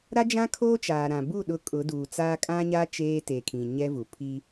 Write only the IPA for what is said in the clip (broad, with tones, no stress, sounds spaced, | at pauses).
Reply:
ɾ a˦ d͡ʒ ã˦ kʰ oː˦ t͡ʃ aː˨ ɾ ã˨ b u˦˨ ɗ ʊ˦ kʼ ʊ˨˦ d uː˨ t͡s aː˦ kʼ ã˦ ɲ a˦ t͡ʃ eː˦ t e˨ kʰ ĩ˨ ɲ ɛ˦ v u˨ pʰ i˦